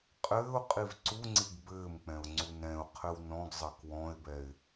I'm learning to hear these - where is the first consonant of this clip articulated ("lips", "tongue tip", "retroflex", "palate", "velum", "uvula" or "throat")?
uvula